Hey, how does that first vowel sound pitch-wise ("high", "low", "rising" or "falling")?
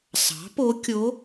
rising